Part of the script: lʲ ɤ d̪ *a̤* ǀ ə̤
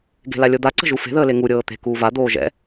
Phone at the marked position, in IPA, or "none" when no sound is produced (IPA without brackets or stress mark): a